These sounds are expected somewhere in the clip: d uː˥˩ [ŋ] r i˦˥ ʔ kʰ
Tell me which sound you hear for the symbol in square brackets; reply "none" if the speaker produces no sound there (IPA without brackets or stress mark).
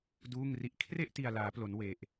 ŋ